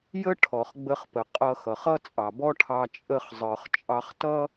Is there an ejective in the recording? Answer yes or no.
yes